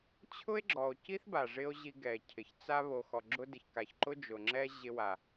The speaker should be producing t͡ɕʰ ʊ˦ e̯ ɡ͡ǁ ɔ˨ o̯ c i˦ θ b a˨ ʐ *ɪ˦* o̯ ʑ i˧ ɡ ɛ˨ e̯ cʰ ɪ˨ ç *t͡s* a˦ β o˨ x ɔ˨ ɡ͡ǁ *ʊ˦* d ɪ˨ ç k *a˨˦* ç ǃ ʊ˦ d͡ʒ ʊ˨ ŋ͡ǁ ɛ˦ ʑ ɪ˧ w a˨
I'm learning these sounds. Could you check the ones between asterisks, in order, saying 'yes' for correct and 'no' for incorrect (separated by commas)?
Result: yes, yes, yes, no